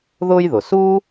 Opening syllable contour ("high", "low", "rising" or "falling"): high